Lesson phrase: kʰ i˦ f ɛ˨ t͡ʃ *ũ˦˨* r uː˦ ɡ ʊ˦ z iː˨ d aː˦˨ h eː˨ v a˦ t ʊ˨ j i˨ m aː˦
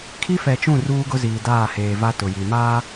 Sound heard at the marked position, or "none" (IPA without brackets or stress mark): ũ˦˨